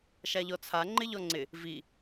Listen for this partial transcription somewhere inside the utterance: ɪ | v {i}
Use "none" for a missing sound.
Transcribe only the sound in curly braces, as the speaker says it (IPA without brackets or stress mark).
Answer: i